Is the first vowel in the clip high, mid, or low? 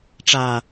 low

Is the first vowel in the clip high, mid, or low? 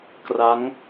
low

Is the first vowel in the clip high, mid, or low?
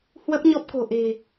mid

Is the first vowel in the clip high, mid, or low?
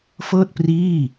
mid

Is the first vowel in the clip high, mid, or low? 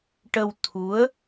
mid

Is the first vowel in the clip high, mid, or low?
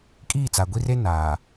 high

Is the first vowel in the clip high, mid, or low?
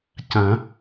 low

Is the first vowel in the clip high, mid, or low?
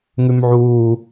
high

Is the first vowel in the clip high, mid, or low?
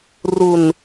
high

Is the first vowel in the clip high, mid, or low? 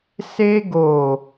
mid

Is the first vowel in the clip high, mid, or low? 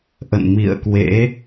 mid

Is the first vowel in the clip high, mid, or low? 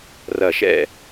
low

